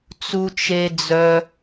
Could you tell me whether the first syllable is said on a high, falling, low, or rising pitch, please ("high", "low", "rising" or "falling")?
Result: high